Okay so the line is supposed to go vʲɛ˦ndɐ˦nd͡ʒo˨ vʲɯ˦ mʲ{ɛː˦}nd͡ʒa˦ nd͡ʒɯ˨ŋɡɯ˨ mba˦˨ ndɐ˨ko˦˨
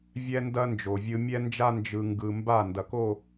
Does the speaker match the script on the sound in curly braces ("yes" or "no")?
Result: no